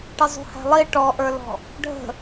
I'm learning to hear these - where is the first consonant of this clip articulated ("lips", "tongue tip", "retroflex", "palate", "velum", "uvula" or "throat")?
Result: retroflex